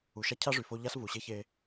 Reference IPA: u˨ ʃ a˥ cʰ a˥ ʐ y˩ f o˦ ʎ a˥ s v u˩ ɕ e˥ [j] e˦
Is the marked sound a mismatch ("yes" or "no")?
yes